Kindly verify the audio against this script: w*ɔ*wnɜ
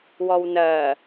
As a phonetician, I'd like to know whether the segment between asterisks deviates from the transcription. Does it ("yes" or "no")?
no